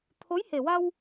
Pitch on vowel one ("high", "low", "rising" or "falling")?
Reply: rising